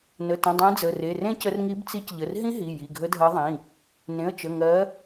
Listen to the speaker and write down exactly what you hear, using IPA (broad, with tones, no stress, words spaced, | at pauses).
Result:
nə˩˧˩tə̃˩˧˩dˤẽ˨˦ d͡zə˩˧˩re˩˧˩rẽ˦˥cə˨˦r ŋi˨˦bt͡si˨˦cʎə˩˧˩r ɦĩ˦˥ɦi˩˧˩ ji˩˧˩ɡʱə˨˦dʱɜ˨˦ðˤĩ˩˧˩ | nẽ˩˧˩ə̯t͡ʃə˩˧˩ŋɜ˨˦